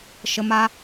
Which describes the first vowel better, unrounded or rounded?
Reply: unrounded